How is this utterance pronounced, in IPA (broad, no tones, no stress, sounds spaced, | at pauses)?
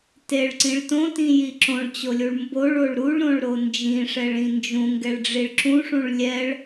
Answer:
t e ɭ ǀ ĩ ɭ t õ t ĩ j i ǁ õ ɭ t͡ɕ o lʲ u ɭ m b o ɭ o ɭ ɾ u ɭ ɾ õ ɭ ɾ o n d͡ʒ ĩ ʂ ɛ ɭ ĩ n d͡ʒ ũ ŋ ɡ ɛ ɭ ɖ͡ʐ i ɭ ǁ ũ ʂ ũ ɭ lʲ ɛ ɭ